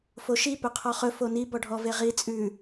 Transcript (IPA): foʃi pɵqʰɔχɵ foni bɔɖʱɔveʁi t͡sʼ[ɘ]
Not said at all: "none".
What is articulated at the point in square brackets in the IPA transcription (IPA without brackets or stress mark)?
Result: ʉ